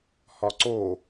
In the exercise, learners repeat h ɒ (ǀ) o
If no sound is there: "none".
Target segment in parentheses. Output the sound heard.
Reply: ǀ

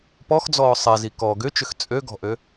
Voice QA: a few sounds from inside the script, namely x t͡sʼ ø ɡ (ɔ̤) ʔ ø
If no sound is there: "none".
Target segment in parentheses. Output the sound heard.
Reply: ɔ̤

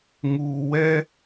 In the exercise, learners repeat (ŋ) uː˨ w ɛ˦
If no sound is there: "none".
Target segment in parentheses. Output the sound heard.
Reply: ŋ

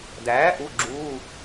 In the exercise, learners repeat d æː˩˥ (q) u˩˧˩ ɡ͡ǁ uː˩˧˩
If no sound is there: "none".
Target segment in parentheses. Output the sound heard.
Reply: ʔ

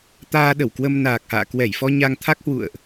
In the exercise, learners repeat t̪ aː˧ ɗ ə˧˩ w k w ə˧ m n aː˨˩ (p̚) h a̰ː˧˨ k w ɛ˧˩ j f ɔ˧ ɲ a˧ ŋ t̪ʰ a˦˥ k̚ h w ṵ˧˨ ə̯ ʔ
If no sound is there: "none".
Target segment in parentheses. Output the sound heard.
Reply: k̚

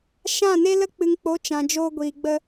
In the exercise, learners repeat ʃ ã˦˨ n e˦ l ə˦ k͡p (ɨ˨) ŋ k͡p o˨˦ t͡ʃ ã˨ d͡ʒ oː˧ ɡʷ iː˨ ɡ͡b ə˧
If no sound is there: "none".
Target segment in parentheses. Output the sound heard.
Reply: ɨ˨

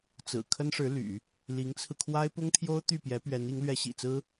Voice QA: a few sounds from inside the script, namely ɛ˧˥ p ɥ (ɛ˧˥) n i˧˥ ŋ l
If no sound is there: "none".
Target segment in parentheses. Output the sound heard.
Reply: ɛ˧˥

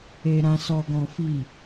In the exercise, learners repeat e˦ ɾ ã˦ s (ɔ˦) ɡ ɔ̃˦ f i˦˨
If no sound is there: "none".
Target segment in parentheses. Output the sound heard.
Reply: ɔ˦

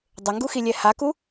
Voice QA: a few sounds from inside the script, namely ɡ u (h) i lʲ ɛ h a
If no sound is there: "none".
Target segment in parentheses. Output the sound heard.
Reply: x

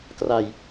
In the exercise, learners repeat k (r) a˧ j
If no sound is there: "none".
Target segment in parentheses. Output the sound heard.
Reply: r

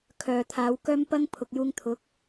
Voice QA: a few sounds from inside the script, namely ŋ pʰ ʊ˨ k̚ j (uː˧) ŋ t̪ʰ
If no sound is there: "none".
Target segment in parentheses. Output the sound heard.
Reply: uː˧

